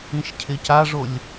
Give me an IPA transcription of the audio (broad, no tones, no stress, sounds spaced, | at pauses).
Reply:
ĩ ʃ cʰ ɪ c a ʐ o lʲ